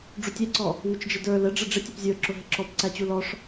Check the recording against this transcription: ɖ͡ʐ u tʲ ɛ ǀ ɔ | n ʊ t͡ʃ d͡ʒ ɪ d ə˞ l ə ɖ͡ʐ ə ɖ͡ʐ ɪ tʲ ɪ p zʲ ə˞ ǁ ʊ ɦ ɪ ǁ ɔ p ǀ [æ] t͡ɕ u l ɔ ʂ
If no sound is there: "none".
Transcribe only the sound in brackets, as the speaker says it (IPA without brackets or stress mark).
æ